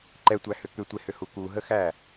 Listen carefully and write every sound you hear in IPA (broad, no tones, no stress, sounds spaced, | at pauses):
ǃ ɛ tʷ æ h ʏ k ʏ tʷ e h ʏ h u k u ɦ ə x æ